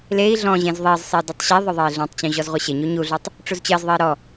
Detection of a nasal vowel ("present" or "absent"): present